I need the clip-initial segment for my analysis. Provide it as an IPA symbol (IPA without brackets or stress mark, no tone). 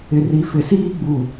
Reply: ɪ